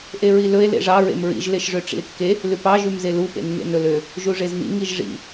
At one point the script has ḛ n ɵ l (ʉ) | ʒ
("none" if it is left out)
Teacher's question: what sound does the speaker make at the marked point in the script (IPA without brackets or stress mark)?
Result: ø